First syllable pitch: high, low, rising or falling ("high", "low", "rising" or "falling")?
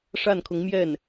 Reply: falling